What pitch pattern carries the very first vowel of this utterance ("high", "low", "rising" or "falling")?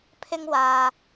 high